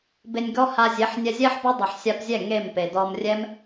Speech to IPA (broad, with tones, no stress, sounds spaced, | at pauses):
b e˧ nʲ ɡ ɔ˦ h a˧ zʲ e˨˦ ħ nʲ ɛ˧ zʲ ɛ˦ ħ b ɔ˦ dˤ ɛ˨ ħ sʲ a˧ p zʲ ɛ˦˨ ŋ e˦˨ m p e˨ d ɔ˧ m rʲ ɛ˦ m